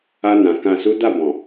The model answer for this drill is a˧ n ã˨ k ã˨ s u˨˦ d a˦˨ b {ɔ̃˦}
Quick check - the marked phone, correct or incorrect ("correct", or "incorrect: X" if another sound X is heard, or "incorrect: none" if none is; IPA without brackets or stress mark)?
incorrect: ɔ̃˨